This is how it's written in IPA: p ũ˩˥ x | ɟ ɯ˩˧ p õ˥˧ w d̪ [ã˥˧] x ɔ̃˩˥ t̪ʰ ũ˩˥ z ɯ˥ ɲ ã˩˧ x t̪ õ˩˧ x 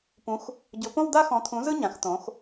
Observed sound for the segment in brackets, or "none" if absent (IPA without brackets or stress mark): a˥˧